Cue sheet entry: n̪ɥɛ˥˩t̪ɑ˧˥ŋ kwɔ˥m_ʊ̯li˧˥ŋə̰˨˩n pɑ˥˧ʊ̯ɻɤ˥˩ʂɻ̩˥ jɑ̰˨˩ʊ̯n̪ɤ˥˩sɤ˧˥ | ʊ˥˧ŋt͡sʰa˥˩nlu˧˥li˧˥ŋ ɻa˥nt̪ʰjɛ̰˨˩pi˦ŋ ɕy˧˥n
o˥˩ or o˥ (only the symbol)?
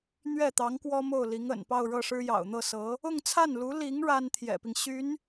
o˥˩